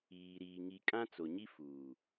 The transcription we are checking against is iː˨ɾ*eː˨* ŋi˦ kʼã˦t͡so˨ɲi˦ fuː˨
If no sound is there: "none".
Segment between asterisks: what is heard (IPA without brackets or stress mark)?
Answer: iː˨